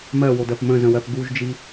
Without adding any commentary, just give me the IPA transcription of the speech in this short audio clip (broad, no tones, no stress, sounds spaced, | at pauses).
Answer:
m ɜ w o d ɜ p m ə̃ z ə̃ w ɜ p ɡ u ʒ d͡ʒ i